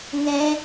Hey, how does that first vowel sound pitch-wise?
high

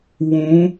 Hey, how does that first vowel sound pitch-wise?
rising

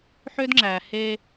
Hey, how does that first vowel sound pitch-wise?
high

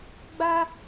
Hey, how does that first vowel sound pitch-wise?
high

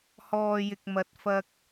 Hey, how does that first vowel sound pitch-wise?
low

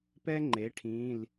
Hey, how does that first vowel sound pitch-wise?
high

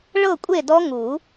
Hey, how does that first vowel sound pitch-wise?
falling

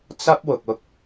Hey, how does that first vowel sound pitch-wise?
high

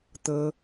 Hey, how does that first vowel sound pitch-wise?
high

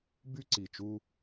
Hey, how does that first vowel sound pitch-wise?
high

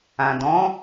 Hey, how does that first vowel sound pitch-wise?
low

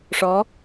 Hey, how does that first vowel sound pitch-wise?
rising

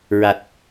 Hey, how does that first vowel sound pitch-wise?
low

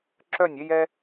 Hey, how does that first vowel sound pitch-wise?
falling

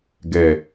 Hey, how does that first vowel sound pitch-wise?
low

